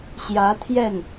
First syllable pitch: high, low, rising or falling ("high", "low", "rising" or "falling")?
rising